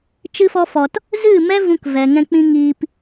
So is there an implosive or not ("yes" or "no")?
no